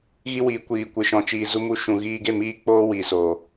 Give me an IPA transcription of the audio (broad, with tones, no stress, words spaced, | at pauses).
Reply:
ɣi˧wiː˨kʷiː˨ kʷɨ˨ ʃɔ̃˨t͡ʃiː˨ zu˧mu˧ ʃũ˨ɣiː˧ ɡe˦˨miː˧k͡poː˧ wiː˨soː˨